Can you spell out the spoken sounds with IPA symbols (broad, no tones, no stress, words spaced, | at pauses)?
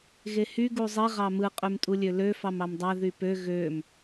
ɣehy ɡuzˤi ʁɑmɯ qʼymtʼulʲølø fɑmɑmdˤæ ðypø ɣøm